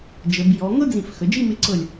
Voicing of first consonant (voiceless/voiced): voiced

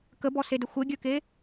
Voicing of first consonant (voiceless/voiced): voiceless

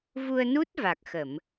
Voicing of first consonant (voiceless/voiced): voiced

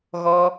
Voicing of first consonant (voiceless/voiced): voiced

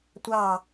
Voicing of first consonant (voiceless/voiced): voiceless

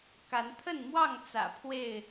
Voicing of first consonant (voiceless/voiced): voiceless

